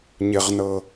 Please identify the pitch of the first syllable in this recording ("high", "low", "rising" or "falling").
low